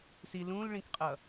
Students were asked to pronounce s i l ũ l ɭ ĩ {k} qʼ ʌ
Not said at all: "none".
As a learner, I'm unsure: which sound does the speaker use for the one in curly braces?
k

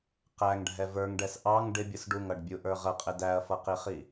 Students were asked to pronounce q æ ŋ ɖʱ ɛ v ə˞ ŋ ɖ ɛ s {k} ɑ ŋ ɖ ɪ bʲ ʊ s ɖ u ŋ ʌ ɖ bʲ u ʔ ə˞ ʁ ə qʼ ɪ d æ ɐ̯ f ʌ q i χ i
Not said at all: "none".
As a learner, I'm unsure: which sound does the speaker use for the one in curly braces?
ʔ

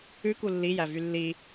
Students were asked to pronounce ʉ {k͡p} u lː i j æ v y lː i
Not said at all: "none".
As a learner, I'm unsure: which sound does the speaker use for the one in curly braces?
k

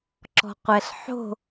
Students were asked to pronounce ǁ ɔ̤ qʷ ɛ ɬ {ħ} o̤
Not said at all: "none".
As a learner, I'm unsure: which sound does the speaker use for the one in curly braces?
ħ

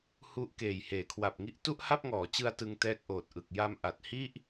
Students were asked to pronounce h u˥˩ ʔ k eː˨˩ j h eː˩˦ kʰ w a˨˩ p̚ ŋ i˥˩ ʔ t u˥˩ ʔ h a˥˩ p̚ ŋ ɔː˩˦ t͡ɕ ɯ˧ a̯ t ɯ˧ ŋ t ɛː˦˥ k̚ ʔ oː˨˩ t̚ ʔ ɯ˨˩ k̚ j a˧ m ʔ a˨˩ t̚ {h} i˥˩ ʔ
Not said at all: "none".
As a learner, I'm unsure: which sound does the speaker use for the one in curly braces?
h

